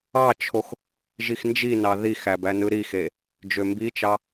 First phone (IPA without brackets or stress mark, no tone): ɑ